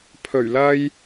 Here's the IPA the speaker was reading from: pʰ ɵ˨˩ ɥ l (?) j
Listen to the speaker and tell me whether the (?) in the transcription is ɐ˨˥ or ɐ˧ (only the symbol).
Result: ɐ˧